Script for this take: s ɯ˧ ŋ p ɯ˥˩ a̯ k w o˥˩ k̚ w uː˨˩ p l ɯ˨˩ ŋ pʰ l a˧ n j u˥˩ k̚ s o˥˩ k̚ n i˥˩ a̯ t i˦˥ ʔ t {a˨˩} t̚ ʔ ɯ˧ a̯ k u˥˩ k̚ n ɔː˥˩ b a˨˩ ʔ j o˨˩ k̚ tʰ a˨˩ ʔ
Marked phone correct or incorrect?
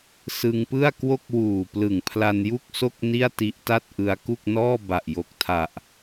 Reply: incorrect: a˥˩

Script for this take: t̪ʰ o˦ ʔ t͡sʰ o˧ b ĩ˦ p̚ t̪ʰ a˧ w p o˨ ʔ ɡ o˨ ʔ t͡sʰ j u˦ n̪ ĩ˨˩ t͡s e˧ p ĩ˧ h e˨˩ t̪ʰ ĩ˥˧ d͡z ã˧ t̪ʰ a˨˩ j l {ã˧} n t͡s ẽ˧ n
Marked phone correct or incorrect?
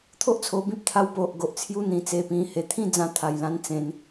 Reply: correct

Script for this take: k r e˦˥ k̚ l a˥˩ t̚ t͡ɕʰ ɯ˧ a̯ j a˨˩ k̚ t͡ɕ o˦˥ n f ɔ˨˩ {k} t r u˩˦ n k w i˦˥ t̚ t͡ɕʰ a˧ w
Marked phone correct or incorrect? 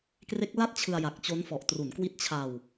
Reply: incorrect: ʔ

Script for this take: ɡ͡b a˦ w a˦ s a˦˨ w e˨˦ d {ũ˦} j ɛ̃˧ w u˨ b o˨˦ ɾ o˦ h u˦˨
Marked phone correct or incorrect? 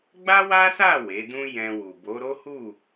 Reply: correct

